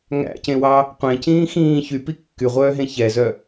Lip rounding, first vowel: unrounded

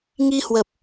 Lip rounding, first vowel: unrounded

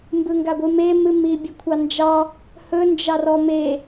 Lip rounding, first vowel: unrounded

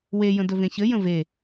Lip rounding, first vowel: unrounded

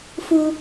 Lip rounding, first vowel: rounded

